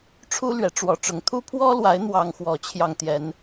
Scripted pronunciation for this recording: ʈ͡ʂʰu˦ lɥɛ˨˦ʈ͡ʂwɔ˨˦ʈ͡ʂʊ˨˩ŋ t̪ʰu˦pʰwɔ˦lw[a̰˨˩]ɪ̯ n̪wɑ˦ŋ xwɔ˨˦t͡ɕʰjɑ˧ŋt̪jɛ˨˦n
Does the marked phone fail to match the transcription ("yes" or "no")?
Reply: yes